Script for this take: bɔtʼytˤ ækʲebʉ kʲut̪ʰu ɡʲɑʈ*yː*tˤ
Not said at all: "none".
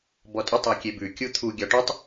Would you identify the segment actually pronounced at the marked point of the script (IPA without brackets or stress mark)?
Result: y